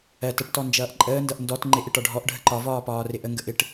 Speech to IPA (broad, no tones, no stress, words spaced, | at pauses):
ɜt əʈtɔ nd͡ʒʌːʔǃʼəːndʌʔ ndɔt ŋ͡ǃɪʔɪ ʈɒɖʱɔʔɖʱə ǃɒvɒː pɒːrɪʔəŋɡə ʔɪʈ